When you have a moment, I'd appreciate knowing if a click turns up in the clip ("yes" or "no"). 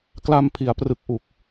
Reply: no